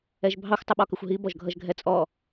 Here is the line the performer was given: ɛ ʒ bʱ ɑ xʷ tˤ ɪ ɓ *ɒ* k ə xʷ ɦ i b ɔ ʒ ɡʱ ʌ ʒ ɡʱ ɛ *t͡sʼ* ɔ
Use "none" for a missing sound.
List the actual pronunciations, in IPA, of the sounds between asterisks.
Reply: ɒ, t͡sʼ

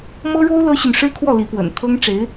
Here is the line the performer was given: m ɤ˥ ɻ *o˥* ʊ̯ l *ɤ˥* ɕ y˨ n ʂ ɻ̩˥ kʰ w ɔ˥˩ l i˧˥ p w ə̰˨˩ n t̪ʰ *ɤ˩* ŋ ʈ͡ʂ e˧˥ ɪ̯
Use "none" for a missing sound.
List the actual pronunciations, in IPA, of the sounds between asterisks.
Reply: o˥, ɤ˥, ɤ˥

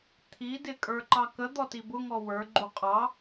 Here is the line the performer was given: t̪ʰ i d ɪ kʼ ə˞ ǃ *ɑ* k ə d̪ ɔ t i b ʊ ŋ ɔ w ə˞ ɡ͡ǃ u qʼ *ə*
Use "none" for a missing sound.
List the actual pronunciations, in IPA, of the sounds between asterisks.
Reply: ɑ, ɑ

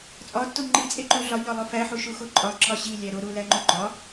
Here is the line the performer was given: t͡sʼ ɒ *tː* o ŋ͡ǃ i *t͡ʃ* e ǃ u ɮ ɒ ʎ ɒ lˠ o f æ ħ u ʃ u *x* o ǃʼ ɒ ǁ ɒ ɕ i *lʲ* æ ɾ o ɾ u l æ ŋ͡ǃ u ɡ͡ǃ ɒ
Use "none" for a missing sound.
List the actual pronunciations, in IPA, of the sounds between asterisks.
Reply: tː, t͡sʼ, x, lʲ

